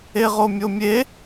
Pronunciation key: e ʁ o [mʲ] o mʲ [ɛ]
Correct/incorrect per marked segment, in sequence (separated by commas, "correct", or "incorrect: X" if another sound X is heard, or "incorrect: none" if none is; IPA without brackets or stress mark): correct, incorrect: e